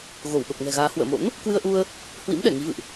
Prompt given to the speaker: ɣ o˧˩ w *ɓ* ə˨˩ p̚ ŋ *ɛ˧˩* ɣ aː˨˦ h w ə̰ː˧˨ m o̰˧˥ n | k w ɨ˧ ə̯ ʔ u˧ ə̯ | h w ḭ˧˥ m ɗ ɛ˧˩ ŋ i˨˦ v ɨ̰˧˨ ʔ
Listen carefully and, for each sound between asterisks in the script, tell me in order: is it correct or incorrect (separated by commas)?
correct, incorrect